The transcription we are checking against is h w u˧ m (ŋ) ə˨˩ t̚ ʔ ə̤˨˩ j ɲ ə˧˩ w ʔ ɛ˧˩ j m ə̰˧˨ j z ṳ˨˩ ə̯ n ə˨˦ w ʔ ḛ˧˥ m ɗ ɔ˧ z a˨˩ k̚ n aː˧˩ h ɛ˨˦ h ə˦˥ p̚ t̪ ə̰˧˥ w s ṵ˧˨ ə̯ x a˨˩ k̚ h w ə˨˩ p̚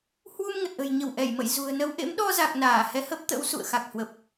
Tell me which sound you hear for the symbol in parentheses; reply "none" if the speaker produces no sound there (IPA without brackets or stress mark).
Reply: ŋ